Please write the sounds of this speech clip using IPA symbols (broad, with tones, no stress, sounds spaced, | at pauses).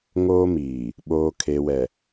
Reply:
ŋ oː˦ m iː˨ | ɓ oː˨ kʰ e˨ w ɛ˨